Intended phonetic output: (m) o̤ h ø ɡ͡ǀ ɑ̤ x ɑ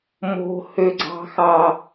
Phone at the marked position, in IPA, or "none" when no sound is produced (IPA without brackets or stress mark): m